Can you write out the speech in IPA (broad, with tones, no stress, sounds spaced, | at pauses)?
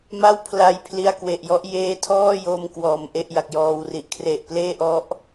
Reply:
m a˥˩ w pʰ l a˧ j pʰ l i˧ a̯ k w e˨˩ ʔ j ɔ˦˥ ʔ j eː˦˥ tʰ ɔː˥˩ j o˧ m k w ɔː˨˩ m ʔ e˥˩ ʔ j a˨˩ k̚ j ɔː˨˩ w r i˨˩ ʔ kʰ r e˨˩ ʔ p l eː˥˩ ʔ ɔ˦˥ ʔ